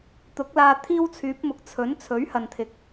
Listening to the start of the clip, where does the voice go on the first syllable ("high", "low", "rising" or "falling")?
rising